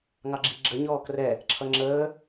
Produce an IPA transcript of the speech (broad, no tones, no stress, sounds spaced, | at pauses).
ŋ ɑ ɡ͡ǁ i ɡ͡ǁ ə ɲ ɔː k r ɛ | ǁʰ ʌ ŋ͡ǁ əː